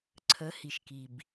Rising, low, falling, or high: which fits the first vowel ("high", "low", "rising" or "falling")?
rising